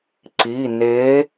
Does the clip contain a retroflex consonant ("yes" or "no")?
no